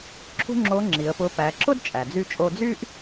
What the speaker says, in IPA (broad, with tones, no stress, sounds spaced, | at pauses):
ǁʰ ṳ˥ ŋ͡ǁ o˧˥ ŋ͡ǁ i˩˧ ə̯ p ʊ˧˥ p æ˩˧ ǁ ʊ˥ d t͡ʃʼ æ˩ d͡z y˧ t͡ʃʼ o˧ d͡z y˥ ʔ